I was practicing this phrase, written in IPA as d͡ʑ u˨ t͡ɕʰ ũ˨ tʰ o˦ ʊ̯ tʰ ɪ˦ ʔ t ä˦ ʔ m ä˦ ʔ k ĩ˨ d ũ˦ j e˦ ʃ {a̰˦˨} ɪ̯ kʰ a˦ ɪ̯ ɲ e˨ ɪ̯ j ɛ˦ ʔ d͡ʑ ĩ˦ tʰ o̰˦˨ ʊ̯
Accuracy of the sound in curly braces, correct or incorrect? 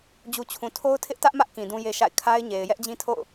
correct